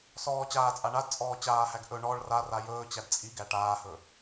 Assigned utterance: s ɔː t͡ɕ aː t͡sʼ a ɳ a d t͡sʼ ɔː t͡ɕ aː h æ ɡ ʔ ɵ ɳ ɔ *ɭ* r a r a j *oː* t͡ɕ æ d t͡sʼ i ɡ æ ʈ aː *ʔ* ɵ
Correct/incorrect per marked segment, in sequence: correct, incorrect: ɵː, incorrect: h

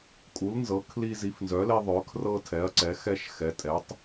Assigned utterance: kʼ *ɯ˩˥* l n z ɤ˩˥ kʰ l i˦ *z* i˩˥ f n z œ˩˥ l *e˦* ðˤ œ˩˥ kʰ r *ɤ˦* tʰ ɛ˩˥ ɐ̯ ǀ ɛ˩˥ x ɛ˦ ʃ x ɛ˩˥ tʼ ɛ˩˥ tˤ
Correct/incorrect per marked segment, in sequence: incorrect: u˩˥, correct, correct, correct

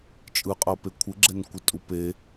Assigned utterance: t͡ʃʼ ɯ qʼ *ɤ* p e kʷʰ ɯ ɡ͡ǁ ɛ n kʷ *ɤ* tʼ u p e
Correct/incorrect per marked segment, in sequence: correct, incorrect: ɯ

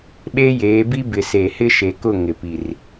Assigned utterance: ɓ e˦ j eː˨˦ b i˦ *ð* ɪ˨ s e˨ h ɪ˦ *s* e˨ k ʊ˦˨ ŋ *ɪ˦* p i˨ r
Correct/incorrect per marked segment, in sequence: incorrect: b, incorrect: ʃ, incorrect: ɪ˨

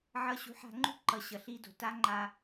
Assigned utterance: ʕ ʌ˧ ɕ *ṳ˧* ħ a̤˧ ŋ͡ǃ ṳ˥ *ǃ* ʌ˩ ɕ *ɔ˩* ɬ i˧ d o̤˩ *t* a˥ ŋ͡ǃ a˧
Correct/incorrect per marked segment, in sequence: incorrect: ṳ˩˥, correct, incorrect: ʌ˩, correct

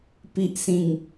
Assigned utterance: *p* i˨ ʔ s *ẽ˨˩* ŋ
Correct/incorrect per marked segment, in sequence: correct, incorrect: ĩ˨˩

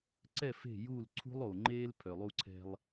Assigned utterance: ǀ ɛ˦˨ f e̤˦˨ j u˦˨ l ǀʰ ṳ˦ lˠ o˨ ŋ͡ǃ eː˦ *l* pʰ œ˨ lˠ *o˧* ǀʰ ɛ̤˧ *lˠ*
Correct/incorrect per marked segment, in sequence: correct, incorrect: u˧, correct

